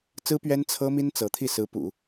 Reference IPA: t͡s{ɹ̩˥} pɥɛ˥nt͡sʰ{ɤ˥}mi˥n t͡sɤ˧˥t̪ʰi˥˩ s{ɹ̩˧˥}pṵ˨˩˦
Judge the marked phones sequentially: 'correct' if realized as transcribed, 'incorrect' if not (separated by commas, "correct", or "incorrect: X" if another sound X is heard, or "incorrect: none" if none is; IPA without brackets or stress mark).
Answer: correct, correct, correct